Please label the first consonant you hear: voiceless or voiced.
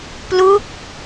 voiceless